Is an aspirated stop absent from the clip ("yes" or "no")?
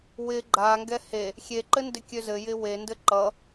yes